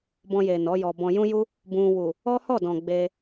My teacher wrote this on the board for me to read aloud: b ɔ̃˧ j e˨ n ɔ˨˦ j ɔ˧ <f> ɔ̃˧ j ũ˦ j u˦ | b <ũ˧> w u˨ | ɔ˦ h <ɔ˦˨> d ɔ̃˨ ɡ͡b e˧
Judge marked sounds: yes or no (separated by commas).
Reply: no, yes, yes